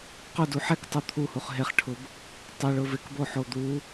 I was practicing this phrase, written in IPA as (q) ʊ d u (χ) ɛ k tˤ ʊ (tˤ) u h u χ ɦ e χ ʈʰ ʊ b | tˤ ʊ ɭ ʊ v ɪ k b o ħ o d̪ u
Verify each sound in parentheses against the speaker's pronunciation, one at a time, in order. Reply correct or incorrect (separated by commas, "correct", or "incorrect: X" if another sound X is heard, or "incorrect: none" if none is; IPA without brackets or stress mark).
correct, incorrect: ħ, incorrect: t̪ʰ